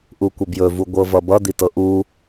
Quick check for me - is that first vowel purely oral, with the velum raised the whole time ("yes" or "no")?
yes